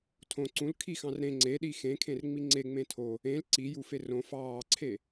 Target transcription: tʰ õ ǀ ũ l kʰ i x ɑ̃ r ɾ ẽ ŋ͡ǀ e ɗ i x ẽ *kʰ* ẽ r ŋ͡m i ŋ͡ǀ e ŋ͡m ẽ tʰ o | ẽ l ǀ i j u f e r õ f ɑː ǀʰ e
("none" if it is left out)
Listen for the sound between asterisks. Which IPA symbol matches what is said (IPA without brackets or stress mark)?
kʰ